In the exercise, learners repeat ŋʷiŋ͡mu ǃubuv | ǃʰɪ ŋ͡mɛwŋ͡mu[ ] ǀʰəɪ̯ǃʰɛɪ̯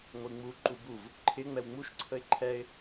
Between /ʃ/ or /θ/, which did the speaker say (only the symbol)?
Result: ʃ